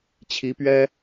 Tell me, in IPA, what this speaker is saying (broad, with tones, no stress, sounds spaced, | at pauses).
t͡ɕʰ i˧˥ p ɥ ɛ˥